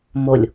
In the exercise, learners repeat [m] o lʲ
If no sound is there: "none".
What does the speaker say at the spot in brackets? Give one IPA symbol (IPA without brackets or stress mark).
m